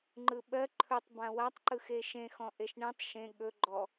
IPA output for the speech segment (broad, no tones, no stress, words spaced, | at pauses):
ŋ͡ǃɯɓɜ ǃʰɵtˤ bãwatˤ ǃɯxeʃẽ xɔ̃ʔeʃɳẽtˤ ʃẽ ɠɵ ɡ͡ǃɔ